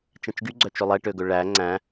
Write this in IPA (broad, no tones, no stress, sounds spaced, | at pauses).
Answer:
t͡ʃ ɛ̃ t͡ʃ ɡ y ɡ͡ǀ œ t͡ʃ ɵ lˠ ɛ ʈ ø ɡ ɵ ɭ æ ŋ͡ǀ æ̃